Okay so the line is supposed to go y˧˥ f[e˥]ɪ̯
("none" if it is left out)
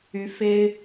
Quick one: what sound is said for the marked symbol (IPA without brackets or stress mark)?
e˥